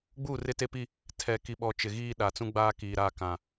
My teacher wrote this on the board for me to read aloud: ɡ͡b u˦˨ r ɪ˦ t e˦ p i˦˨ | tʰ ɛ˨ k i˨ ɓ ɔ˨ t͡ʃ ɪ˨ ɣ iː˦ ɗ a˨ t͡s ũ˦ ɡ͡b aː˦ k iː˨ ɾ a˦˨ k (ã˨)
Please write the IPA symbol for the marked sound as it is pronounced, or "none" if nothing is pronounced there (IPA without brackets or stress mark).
ã˨